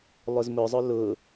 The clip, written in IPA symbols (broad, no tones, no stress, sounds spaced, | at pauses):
lˠ ʊ z m ʊ zˤ ʊ l ʊ